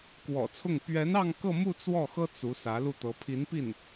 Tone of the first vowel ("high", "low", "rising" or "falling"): low